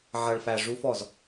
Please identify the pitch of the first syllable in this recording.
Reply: low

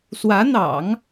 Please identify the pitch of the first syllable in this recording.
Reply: rising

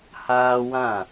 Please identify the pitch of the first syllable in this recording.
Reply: high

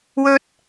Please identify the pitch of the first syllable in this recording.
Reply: high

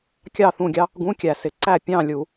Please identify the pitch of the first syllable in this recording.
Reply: falling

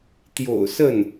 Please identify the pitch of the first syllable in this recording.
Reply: low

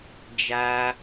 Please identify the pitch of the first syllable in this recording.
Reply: high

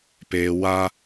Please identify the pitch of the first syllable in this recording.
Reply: low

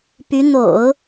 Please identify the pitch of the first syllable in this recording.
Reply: rising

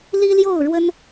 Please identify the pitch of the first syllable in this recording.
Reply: high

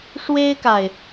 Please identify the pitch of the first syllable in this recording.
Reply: high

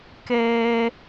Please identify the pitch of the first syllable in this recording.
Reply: high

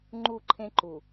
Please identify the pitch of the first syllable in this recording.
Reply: falling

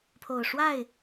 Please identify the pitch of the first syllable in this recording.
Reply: low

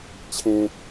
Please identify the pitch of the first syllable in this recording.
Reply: high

